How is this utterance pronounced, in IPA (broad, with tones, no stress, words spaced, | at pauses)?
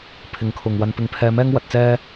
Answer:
pʰɪ˨˧ŋkʰʊ˨ŋwɐ˧n pɪ˧ŋpʰɛː˧mɛː˥ŋ wɐ˧t̚t͡sɛː˥